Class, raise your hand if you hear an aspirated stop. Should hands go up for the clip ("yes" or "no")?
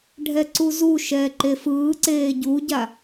no